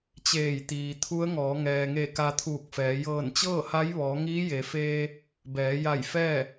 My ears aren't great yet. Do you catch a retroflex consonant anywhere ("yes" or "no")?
no